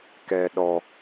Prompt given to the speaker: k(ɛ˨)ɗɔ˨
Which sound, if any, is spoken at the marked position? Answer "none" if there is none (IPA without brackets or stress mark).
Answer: ɛ˨